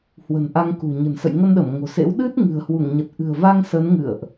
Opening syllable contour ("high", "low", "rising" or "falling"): low